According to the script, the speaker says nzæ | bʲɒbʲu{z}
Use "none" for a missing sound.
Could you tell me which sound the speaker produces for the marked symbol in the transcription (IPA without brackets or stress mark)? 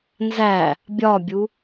none